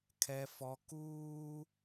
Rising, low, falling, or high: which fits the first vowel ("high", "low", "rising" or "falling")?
high